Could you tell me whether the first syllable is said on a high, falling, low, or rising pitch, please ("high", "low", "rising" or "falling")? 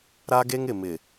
high